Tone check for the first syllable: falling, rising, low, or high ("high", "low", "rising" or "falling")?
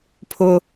high